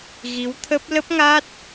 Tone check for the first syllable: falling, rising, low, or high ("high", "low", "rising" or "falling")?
rising